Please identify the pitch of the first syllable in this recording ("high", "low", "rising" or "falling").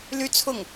high